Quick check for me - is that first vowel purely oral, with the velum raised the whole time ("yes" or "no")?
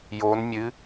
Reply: yes